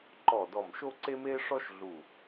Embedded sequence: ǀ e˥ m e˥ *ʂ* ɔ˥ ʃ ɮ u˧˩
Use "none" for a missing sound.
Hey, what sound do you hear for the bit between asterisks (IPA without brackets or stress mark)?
ʂ